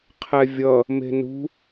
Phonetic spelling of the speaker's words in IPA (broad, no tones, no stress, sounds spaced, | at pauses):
qʰ ɛ vʲ ʌ | m e̤ n ṳ